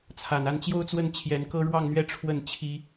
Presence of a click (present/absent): absent